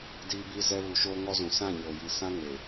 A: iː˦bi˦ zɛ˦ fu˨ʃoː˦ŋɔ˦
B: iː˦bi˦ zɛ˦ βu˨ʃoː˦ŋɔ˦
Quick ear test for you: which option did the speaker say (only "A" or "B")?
B